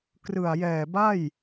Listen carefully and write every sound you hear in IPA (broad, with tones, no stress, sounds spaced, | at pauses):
k r ɯ˨˩ a̯ j ɛː˨˩ b a˥˩ j